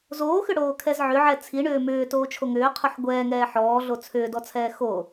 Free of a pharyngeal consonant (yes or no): no